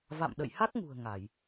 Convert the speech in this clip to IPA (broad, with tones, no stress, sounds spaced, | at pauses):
v a̰˧˨ m ɗ ə̰˧˨ j h a˦˥ k̚ ŋ ṳ˨˩ ə̯ ŋ a˧˩˨ j